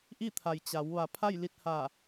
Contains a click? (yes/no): no